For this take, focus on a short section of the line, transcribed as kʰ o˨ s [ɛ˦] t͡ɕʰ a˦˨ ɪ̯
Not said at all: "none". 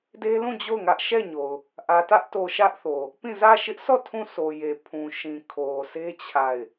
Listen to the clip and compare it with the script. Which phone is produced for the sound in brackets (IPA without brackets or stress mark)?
e˦